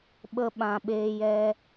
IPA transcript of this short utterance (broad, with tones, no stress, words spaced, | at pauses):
ɓə˧ ɓã˨ɓeː˧jɛ˧